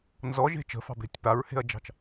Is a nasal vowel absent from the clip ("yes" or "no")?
yes